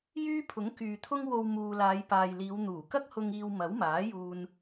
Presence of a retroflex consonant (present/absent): absent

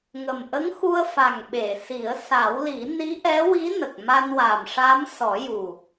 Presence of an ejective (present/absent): absent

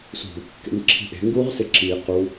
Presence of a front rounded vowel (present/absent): absent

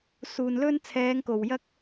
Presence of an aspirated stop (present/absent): present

